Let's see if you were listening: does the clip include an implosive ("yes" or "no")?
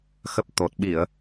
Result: yes